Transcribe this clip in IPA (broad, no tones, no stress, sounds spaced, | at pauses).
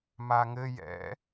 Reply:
m a ŋ ɘ j ɛ̰